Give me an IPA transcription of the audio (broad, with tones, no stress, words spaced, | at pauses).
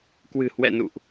kwɨ̤˨˩hwɛ̰˧˨nṵ˧˨ʔ